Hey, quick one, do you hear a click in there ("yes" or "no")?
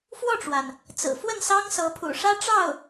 no